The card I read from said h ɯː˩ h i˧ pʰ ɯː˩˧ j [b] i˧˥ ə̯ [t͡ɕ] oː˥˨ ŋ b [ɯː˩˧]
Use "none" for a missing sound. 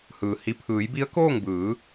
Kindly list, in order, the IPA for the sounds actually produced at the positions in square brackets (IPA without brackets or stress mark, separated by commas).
b, k, ɯː˩˧